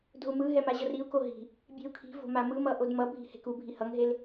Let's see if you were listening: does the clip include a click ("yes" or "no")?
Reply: no